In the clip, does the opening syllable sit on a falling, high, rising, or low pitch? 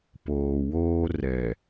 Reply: low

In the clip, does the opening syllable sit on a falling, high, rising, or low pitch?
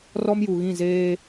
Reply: high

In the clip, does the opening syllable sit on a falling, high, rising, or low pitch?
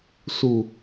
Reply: low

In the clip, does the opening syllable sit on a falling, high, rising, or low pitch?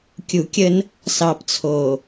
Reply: low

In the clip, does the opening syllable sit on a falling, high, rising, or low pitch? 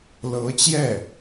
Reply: rising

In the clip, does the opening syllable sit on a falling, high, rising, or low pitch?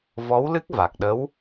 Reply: rising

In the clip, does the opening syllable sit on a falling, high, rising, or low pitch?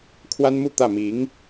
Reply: high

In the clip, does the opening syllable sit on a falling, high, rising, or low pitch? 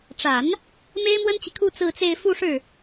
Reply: low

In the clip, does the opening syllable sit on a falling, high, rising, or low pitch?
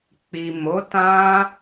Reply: low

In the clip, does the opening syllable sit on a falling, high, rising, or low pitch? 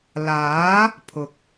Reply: rising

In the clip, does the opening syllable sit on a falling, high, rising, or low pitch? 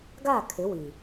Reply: falling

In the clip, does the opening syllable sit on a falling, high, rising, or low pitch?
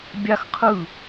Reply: high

